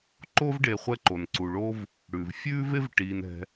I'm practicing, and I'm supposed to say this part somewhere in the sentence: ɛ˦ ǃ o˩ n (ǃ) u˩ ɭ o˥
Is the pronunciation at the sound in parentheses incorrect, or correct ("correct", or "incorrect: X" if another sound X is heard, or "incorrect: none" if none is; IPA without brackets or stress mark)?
incorrect: ǀ